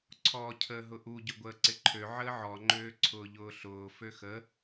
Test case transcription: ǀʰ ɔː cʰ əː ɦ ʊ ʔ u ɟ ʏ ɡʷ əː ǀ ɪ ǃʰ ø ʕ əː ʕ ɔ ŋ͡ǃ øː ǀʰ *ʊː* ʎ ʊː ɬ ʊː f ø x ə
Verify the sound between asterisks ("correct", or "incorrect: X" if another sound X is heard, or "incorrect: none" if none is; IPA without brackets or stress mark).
correct